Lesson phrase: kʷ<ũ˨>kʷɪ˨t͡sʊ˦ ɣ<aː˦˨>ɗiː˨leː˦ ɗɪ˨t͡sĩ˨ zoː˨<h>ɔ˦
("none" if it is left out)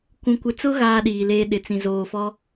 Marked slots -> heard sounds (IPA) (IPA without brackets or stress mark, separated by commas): ũ˨, aː˦, f